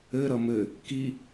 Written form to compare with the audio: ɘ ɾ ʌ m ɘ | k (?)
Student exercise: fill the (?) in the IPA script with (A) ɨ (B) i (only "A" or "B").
B